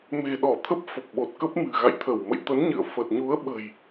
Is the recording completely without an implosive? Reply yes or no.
no